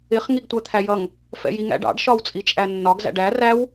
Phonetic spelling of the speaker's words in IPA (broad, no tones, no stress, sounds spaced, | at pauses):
ɪ χ ŋ i ɡ tʷ æ t̪ʰ æ j ʌ ŋ | f ɛ̰ j i ŋ æ̰ ɖ ɑ̰ ɖ ʃ ɒ w t͡sʼ i t͡ʃʼ æ nː ɒ ɡ z æ̰ ɖ æ r æ w